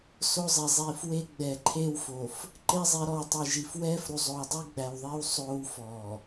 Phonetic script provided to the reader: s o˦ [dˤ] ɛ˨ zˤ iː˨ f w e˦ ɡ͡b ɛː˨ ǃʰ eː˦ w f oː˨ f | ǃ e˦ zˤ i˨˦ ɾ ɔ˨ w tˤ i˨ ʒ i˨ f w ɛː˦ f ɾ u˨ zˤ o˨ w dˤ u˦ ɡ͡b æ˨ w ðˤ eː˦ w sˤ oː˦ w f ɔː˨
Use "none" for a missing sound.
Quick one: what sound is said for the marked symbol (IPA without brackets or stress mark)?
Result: zˤ